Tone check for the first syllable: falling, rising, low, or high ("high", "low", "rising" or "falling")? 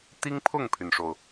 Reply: high